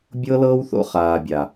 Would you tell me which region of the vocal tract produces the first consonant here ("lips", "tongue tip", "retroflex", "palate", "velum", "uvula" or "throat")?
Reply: lips